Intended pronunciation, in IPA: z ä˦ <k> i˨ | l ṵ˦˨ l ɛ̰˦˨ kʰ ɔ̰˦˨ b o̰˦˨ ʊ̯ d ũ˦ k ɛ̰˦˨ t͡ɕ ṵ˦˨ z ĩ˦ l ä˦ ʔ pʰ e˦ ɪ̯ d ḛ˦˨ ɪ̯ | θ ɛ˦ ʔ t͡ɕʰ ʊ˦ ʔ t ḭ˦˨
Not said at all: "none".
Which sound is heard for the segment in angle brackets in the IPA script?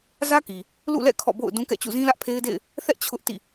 k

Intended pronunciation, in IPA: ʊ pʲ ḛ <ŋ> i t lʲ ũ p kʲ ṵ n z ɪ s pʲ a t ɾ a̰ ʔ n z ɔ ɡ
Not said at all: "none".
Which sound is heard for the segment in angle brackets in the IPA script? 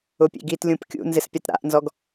ɡ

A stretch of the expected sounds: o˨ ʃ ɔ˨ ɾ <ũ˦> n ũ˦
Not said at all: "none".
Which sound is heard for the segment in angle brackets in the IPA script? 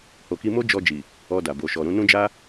ũ˧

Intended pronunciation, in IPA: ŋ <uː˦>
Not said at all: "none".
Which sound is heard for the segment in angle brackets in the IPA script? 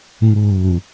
uː˨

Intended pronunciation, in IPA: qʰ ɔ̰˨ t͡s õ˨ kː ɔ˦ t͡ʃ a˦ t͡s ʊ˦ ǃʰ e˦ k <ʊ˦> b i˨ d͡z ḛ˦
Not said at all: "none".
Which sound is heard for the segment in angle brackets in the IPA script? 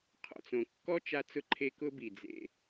ʊ˦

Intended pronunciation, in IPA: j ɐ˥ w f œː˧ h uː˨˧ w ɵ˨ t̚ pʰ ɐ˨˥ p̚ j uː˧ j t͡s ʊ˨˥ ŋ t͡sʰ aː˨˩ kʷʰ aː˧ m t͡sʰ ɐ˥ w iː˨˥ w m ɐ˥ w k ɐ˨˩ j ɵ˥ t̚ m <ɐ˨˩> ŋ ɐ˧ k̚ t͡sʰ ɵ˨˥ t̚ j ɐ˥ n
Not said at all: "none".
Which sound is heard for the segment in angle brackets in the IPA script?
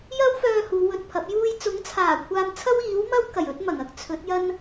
ɐ˨˩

